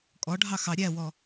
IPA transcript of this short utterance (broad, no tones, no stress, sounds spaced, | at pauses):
kʼ ɔ ɖʱ ɑ x ɑ ɾʲ æ w ɔ